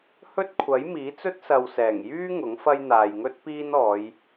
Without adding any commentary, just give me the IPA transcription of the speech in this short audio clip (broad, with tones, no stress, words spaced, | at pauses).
hɵ˥t̚kʷʰɐ˨˥j miː˨˥t͡sɵ˥t̚ sɐ˨wsɛː˨˩ŋjyː˥ ŋʊ˨˥ŋfɐ˥j n̪aː˨jŋɵ˥t̚ piː˥nɔː˨˧j